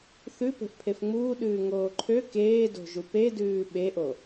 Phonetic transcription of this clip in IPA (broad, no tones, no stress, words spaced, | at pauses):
θʉpe̤ʔ pʰefŋ͡muːɗʉː ŋoːǃʰø keːdo̤ʒu pedʉː ɓeʔo